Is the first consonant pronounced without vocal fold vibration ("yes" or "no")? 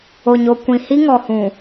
no